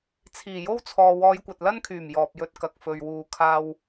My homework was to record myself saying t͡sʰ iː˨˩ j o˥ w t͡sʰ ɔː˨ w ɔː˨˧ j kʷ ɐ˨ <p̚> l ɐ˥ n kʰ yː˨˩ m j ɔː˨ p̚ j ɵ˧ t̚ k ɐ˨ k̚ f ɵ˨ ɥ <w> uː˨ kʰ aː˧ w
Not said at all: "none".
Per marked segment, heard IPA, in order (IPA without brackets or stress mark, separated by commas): t̚, w